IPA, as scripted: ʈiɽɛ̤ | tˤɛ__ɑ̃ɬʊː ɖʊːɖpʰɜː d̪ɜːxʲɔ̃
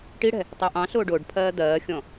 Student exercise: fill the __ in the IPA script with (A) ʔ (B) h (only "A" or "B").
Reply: A